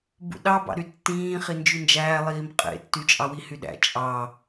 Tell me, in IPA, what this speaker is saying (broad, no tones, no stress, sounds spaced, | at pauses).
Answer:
b ṵ ɗ ɑ b ɑ̰ ɾ y tː ĩː χ i n d͡ʒ y n d͡ʒ æː lˠ iː m qʼ ḛ tː y t͡ʃʼ ɑ w i h y ɗ æ̰ t͡ʃʼ ɑ